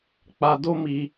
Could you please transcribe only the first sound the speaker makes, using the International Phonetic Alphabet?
k͡p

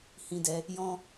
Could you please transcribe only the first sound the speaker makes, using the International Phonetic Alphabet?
h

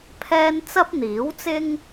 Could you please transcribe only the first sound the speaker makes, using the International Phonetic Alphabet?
pʰ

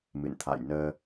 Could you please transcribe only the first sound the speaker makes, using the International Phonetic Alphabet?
m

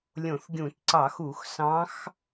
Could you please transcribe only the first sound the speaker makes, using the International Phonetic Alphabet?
lʲ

